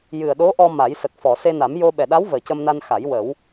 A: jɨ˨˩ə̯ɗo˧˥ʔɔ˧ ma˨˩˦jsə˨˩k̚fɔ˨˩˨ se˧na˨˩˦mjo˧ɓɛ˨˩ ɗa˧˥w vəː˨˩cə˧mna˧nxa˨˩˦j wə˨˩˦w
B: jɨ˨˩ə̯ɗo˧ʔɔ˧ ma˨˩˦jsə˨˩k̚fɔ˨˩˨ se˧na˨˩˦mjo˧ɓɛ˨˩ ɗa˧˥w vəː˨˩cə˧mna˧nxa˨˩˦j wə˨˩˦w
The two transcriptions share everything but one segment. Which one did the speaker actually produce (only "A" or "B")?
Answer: A